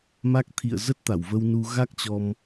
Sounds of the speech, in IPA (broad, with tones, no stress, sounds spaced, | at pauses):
m a˦˥ k̚ t̪ʰ ḭ˧˨ ə̯ z ə˦˥ t̚ t̪ a˧˩ w v ə˧ w n u˧ ɣ a˦˥ k̚ t͡ɕ ɔ˧ m